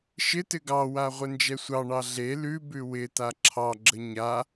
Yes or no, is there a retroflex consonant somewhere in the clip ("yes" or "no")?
yes